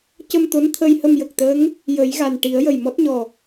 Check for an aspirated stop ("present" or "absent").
present